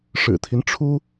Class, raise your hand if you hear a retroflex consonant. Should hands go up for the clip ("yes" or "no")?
yes